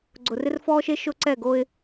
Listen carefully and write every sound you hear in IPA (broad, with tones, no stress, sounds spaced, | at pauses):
ɡ͡ǀ ʊ˨ r ɪ˦ r f ɔː˦ ʃ e˦ ʃ ʊ˦ ǀ ɛ˦˨ ɡ o˦ ɪ̯